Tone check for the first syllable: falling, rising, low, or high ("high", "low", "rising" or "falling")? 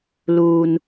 low